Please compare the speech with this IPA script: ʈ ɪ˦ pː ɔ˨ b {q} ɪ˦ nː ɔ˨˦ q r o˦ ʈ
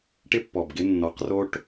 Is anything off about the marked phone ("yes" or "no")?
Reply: yes